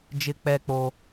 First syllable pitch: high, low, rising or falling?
high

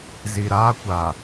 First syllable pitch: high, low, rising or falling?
low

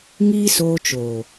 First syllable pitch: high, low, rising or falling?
high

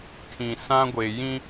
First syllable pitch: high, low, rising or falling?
low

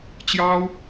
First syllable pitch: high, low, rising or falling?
high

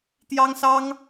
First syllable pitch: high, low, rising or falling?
high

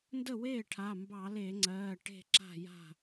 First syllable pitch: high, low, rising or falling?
falling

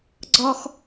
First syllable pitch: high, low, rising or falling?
high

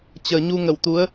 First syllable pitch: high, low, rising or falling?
low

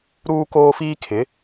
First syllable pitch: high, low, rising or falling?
high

